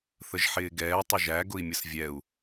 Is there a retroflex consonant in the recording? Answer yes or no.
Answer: no